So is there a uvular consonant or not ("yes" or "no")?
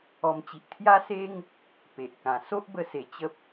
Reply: no